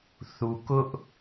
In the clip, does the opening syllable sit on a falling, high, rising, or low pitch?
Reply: low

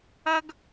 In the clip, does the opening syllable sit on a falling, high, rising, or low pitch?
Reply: high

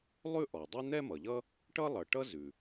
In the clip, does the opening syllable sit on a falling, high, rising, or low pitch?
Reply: high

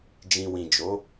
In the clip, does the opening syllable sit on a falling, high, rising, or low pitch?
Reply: low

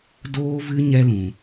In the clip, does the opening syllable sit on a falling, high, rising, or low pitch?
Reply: high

